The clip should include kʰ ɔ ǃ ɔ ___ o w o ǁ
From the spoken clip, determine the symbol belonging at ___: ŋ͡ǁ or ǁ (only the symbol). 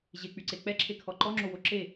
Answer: ŋ͡ǁ